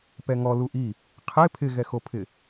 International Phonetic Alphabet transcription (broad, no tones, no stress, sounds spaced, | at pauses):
p ɛ ŋ ɔ l u ʔ i | qʰ e pʰ ɪ ɣ ɛ x o pʰ ɪ